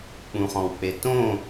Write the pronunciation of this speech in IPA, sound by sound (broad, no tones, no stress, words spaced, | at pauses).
k͡pũχɔ̃wk͡petõ